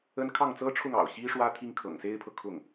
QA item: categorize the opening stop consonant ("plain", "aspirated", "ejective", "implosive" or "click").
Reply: aspirated